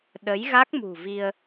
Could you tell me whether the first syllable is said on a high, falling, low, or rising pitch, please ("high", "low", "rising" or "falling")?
rising